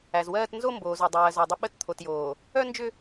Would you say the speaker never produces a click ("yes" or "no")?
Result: yes